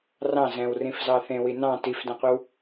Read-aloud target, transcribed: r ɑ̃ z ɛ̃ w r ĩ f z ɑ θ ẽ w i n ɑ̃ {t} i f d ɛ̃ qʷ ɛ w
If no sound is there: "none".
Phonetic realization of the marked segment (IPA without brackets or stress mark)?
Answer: t